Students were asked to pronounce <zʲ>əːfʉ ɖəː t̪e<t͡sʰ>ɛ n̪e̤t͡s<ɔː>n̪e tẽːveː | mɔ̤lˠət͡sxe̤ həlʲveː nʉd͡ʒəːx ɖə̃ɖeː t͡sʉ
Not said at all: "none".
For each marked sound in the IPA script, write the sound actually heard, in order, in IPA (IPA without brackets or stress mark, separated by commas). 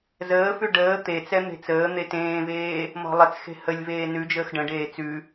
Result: z, t͡s, əː